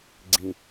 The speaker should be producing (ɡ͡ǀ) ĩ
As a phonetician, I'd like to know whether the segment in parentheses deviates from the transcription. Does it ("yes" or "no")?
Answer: no